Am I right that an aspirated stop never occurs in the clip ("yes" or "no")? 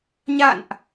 yes